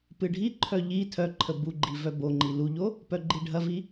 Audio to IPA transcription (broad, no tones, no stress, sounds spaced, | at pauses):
p ɨ ɖʱ i ǃʰ œ ʎ i tʰ œ ǃʰ ə b u ɡ͡ǃ i v œ b o ŋ͡ǃ i l u ʎ o | p œ ɡ͡ǃ i ɖʱ ɐ v i